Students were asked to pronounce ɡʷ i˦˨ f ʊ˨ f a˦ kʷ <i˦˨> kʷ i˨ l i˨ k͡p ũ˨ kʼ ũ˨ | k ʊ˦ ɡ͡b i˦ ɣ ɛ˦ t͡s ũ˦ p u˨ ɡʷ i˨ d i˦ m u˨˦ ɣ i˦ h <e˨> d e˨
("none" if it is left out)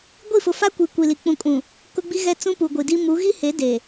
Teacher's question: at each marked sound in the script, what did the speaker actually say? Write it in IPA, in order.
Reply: i˨, e˨˦

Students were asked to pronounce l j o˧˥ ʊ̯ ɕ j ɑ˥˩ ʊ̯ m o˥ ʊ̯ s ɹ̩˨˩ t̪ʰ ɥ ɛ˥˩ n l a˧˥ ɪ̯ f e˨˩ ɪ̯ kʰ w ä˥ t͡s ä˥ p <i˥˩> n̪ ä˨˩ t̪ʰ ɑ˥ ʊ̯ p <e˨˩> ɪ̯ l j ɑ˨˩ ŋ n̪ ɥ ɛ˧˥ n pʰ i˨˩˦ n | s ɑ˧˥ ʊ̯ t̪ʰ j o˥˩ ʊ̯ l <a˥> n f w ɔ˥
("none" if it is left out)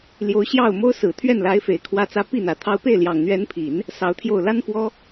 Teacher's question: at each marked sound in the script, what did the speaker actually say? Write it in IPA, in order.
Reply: i˥˩, e˥˩, a˥

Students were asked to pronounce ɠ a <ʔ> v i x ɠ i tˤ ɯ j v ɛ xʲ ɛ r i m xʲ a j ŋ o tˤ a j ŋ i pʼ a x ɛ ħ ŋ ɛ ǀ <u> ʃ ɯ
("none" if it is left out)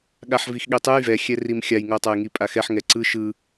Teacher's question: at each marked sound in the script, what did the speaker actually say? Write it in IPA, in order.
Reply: ħ, ɯ

